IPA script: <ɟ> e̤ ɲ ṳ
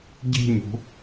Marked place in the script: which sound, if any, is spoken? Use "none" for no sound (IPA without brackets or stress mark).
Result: ɟ